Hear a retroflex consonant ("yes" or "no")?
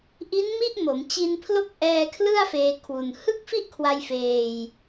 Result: no